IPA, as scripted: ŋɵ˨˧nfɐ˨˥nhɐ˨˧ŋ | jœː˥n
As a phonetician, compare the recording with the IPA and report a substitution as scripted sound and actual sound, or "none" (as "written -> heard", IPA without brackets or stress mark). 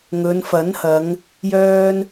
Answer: none